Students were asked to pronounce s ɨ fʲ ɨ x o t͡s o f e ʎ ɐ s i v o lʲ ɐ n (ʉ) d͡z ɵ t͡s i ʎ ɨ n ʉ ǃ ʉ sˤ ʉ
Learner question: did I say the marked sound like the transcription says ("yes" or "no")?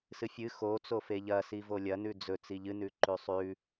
yes